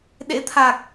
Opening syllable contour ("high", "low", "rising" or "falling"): rising